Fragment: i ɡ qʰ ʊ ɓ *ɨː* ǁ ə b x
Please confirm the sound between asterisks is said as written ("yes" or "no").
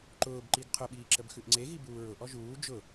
no